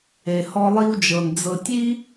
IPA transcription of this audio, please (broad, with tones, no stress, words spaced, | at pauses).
e˨hɔ˧lˠi˧wd͡ʒɤ˨n d͡zɤ˨tʲi˦